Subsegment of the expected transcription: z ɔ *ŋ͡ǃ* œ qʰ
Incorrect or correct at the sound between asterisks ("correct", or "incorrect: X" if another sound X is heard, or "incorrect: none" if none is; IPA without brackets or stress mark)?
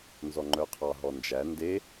correct